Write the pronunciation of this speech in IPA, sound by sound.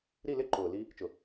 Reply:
ɾi˦˨lɪ˦ ǃʊː˨ li˧ | t͡ʃʊ˨

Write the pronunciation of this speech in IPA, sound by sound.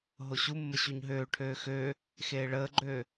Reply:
ɦoɕumːə ɕuɲɦøːʈʰøː xøː | xeːɭəːɡ͡ǃøː

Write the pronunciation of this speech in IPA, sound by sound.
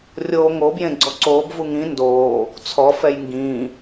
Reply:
rʲoːŋo bjẽɡ͡ǀɔǀoːb vuŋĩ ndoː | t͡sʰɔ fɛjŋɡĩː

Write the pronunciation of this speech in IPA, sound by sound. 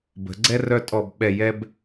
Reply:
bə̤˩˧ɡ͡ǀɛ˦ rœ˦tʼɔ˧˩b ɓɛ˧˩jɛ˦b

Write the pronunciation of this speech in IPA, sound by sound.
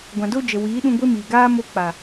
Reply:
ɡʷã˨do˧ d͡ʒə˨wiː˨˦ɗũ˧ ɡʷe˦miː˨ɡaː˦ mo˧ k͡pa˨

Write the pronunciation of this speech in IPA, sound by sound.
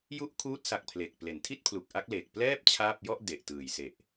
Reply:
ju˦˥ʔ kʰuː˦˥t̚sa˨˩k̚ pʰle˨˩k̚ ple˩˦ntʰi˥˩t̚ pʰlu˨˩k̚ʔa˦˥k̚ le˨˩k̚plɛː˥˩p̚ t͡ɕʰaː˥˩p̚ jɔ˥˩ʔ de˨˩ʔtɯː˨˩jse˨˩ʔ

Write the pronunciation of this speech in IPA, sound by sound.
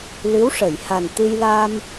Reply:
lɨ˧˥wʂə˨˩˨jha˨˩n t̪ɨ˧jla˧m

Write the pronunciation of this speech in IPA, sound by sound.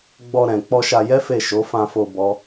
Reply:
ɡ͡bɔ˧ ɾɛ̃˨k͡pɔ˧ ʃa˧jɛ˦fe˦˨ʃo˨˦ fã˧fo˧ bɔ˦

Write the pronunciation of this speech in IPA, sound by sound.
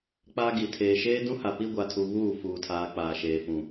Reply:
k͡pa˦ɡi˨ tʰeː˨ʃeː˦dũ˦ha˨ pi˦ɡʷa˨tʰu˨ βuː˦˨fuː˨tʰaː˨ k͡paː˨ʃeː˨fũ˨

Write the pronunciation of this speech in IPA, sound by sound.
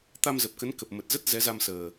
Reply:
t̪a˧mzə˨˩p̚ kə˨˦nkə˨˩p̚ mə˨˩t̚zə˦˥t̚ zɛ˨˦za˧msəː˨˩

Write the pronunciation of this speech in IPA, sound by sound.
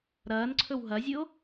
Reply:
ɾɐːnǀʰɵw ɦɐzʲɨo̯

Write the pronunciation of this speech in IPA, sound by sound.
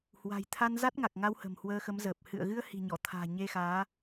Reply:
hwa̤˨˩jt̪ʰa˧nza˦˥t̚ ŋa˨˩k̚ŋa˧whə̤˨˩m hwəː˧xə˨˦mzəː˨˩p̚ hɨ̰˧˨ə̯ɣɨ˧ə̯ hi̤˨˩ɲɔ˧˩t̪ʰa̤ː˨˩ ɲe˧xaː˨˦

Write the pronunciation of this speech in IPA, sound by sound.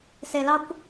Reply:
se˧lɑ˦kʷ

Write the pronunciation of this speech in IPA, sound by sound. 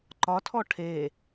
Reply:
ǃɒtʰɔ ʈʰe

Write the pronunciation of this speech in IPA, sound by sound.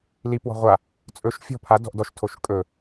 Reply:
lipwɔ̤ ʁʷa | t͡sʼɵʃ fʲɔ̤ pʰa dɔ̤ʔdɔʃtʰoʃ kʼɵ

